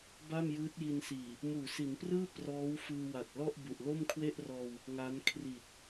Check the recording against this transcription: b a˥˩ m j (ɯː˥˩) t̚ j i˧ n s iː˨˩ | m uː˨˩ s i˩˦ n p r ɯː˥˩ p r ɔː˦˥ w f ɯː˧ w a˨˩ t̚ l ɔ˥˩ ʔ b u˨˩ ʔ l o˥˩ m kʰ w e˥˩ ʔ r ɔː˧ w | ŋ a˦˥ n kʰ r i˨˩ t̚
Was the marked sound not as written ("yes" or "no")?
yes